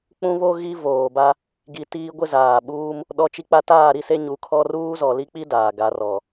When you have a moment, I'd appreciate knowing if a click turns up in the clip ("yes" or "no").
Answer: no